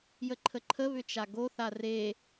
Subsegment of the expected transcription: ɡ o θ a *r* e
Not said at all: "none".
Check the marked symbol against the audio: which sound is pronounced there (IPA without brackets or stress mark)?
r